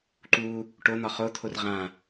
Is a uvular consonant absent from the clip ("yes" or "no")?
no